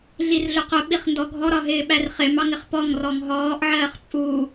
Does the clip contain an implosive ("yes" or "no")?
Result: yes